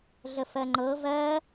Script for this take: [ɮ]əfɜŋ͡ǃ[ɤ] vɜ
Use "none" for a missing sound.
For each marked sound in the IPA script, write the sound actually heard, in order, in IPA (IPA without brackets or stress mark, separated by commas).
ɮ, ɤ